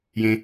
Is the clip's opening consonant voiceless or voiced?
voiced